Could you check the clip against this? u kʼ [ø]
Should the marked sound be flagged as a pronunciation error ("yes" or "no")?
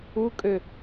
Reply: no